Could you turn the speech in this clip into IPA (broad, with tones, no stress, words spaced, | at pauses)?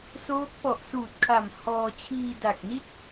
soː˦˥k̚ pɔ˨˩ʔsuː˨˩t̚kʰa˨˩m hɔː˧ t͡ɕʰiː˧da˨˩k̚ni˥˩t̚